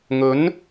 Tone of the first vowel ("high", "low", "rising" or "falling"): rising